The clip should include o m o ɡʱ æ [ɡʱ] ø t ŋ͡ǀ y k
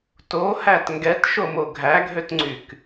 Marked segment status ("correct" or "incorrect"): correct